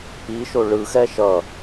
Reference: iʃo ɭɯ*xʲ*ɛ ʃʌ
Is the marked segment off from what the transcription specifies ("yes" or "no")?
yes